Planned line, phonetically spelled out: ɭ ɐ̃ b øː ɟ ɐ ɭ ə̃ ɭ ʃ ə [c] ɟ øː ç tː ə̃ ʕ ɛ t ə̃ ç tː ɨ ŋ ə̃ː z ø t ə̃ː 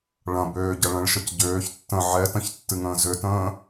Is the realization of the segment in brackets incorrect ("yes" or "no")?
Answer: no